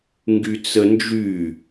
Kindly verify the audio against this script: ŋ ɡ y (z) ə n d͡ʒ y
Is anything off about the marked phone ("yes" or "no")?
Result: yes